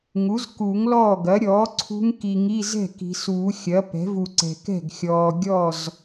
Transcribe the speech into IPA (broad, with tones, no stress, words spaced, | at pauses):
ŋu˩˥zku˨˩˦ŋlɔː˥˩ɡɐ˩˥ ɾʲɔː˩˥ ǀʰṳ˦˥ŋ ki˨ŋi˧˥˧ zɛ̤˥˩ki̤˨ suː˨˩˦xʲɐ˩˥pɛ̤˩˥vu˨ ǀɛ̤˨kɛ̤˥˩ɡxʲɔː˨ɡʲɔ˥˩z